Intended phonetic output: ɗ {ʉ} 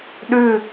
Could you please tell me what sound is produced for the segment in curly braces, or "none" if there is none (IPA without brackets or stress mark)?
ʉ